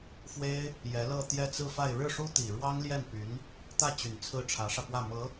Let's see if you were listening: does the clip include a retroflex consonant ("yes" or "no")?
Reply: yes